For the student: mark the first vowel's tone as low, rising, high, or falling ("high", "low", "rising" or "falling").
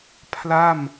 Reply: falling